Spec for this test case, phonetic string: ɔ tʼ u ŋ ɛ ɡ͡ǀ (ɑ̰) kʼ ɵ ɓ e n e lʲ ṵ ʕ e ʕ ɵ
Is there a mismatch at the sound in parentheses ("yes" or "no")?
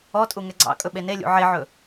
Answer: no